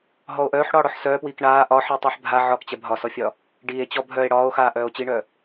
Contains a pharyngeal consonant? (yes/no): yes